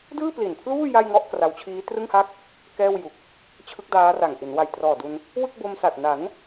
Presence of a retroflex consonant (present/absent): absent